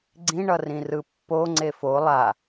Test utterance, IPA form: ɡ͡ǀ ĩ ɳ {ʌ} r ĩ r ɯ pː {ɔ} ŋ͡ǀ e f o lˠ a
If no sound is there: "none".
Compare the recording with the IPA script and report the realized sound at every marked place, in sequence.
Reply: ʌ, o

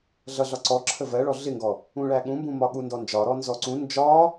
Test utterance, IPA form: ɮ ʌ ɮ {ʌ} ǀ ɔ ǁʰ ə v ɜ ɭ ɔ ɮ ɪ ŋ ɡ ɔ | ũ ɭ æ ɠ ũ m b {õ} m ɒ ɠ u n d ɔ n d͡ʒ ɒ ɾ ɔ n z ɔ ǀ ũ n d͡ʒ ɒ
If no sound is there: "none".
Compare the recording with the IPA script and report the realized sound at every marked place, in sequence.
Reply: ɒ, ũ

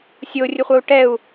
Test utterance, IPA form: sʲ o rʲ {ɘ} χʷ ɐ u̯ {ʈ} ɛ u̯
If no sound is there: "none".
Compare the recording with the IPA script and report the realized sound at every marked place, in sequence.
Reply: ɘ, ʈ

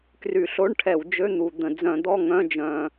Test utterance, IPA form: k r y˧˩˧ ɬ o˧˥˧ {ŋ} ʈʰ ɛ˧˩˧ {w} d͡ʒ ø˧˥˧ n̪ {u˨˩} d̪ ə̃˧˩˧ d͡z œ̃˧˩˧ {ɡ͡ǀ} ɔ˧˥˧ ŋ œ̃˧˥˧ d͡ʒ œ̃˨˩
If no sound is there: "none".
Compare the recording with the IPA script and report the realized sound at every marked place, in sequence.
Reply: ɳ, w, u˨˩, d̪

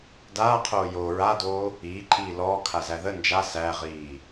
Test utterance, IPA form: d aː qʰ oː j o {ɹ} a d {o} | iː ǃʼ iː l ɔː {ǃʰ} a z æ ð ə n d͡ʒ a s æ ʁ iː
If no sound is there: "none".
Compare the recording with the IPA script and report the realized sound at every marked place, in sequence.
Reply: ɹ, oː, kʰ

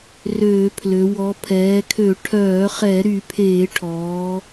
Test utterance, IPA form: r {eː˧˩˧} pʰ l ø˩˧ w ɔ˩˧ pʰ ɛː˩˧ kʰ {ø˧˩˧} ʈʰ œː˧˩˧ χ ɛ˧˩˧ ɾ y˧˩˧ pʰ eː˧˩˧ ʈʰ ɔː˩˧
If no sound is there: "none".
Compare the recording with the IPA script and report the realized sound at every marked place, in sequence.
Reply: øː˧˩˧, ø˧˩˧

